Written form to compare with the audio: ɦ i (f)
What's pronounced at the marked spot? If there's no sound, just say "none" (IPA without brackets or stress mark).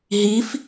f